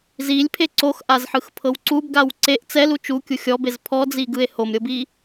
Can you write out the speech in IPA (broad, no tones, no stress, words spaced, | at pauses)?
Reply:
zilʲpʰe ǀoxʔazħɯxpʰɤw ǀubɡaw ǀeʔ t͡sɛlu t͡ʃukʲu xʲɔbez pʰɔd͡ziɡɯe̯ homɾʲɤbi